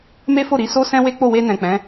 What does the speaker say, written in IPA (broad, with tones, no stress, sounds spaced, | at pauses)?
m e˦ f o˦˨ ɾ i˨˦ s o˦ s ɛ̃˦ w e˦ k͡p o˦˨ w e˧ n ɛ̃˨ k͡p ɛ̃˨˦